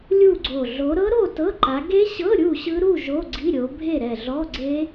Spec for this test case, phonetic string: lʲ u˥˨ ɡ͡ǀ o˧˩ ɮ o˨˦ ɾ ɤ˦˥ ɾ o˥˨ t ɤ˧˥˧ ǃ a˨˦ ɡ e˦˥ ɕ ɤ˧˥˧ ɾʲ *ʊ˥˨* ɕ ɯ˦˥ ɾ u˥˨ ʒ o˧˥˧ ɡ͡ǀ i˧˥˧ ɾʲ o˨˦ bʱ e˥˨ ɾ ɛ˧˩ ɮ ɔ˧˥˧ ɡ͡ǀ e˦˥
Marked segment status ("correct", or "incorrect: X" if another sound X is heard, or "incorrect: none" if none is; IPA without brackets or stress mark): incorrect: u˥˨